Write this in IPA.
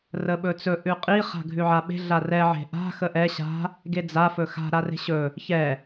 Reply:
rəɓɵt͡sɵ ʔʉqʼi χa̤ɡʱʉʕaɓe̤ ɮarɛ ʕe̤ʔa̤ xəʔɛ ɕa̤ | ɡed͡za fɵxa̤ ɾare̤ɕɵ | çɛ

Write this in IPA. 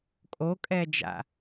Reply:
kʼokʼɛd͡ʒa̰

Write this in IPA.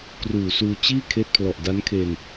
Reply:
kruː˨˩suː˧ t͡ɕiː˥˩ kʰeː˦˥t̚pʰlɔ˨˩ʔ da˦˥nkʰe˧n

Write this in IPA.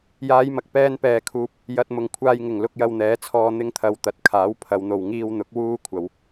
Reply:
jaː˨˧jmɐ˨k̚ pɛː˧npɛː˨kʰuː˨p̚ | jɐ˨t̚mʊ˨˩ŋ kʷʰaː˨jŋɪ˨˩ŋ lʊ˧k̚jɐ˧wn̪ɛː˨˥t͡sʰɔː˧ n̪ɪ˧ŋt̪ʰɐ˨wt̪ɐ˨t̚kʰaː˨˥w pʰɐ˨˧wn̪o˨w ŋiː˧wn̪ʊ˨˥k̚ wuː˥ kʷʰɐ˨˧w

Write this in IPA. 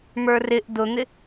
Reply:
mə˞rɪʔ dʊn̪ɪ

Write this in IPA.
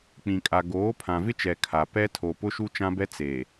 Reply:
k͡pĩ˨kʼa˨ ɡoː˨˦pʰã˨vɪ˦t͡ʃɛ˨ kʰa˨ pɛ˦tʰo˨ pʊ˦ ʃu˦t͡ʃã˦bɛ˦ t͡se˨

